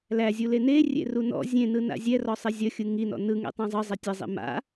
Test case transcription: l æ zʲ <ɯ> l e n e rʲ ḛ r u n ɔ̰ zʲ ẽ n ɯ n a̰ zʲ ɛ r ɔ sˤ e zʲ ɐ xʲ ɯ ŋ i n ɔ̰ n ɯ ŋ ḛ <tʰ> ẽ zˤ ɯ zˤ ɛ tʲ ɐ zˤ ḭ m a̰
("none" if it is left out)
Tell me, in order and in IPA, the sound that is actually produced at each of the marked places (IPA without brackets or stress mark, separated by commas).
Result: u, tˤ